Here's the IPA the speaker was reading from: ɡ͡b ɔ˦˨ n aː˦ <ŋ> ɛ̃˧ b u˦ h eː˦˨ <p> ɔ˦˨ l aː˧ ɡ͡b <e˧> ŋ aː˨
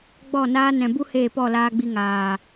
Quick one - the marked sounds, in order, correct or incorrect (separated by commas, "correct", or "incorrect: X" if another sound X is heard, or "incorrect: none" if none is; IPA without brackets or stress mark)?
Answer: incorrect: n, correct, incorrect: i˧